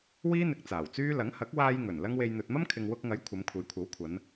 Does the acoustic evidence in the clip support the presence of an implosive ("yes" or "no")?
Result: no